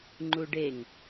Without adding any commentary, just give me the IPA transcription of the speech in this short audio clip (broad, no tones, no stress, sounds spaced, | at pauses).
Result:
ŋ͡ǃ u ɖ e ŋ